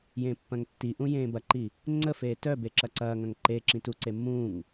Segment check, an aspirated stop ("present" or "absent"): absent